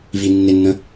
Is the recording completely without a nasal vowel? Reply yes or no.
no